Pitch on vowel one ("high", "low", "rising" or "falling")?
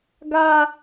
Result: high